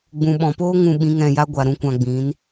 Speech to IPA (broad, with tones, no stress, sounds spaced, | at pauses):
ɡ͡b ũ˨ ɓ ɔ̃˨ p oː˦ ŋ ũ˧ ɓ ĩ˨˦ ŋ ɛ̃˧ j a˦ ɡʷ a˨ ɾ ũ˦˨ kʷ ã˧ ɡ͡b ĩ˨˦ n